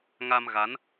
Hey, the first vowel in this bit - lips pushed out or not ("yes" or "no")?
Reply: no